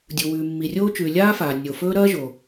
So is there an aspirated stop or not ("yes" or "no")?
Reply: no